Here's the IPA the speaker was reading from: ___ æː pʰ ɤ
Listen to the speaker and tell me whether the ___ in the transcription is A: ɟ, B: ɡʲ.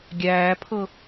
B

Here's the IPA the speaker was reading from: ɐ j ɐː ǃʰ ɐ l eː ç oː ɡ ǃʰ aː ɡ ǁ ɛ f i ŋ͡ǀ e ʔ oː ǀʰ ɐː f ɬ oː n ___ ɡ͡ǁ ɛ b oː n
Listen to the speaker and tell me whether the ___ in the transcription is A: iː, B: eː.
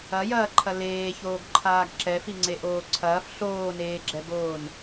B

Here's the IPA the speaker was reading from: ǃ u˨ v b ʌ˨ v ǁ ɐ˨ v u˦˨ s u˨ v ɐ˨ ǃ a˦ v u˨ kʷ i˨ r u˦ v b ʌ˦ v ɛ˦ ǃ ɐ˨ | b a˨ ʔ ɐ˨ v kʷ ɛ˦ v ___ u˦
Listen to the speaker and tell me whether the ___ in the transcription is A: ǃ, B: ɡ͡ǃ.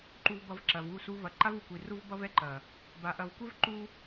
A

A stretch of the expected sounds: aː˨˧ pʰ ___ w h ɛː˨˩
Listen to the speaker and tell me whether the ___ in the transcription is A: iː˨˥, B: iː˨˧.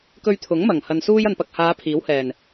A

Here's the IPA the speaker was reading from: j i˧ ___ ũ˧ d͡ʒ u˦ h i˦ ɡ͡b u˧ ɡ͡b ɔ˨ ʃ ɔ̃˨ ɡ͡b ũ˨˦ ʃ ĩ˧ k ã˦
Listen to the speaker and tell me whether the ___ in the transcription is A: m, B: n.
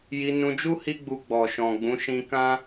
B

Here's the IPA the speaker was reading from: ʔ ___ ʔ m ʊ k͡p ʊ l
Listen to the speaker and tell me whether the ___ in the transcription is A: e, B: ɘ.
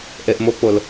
A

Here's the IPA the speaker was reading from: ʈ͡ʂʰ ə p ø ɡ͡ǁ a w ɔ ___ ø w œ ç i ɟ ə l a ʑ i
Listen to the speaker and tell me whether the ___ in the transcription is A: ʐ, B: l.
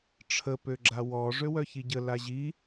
A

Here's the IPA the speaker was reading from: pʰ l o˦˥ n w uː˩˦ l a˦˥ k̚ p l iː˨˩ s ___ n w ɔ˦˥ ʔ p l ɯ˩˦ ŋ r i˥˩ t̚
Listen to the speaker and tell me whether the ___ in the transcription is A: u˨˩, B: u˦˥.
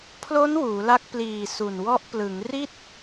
A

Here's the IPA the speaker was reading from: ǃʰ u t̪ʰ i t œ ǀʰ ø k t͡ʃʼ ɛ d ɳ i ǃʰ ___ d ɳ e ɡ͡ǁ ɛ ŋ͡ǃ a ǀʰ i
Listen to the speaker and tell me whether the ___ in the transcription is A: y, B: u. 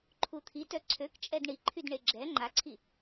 A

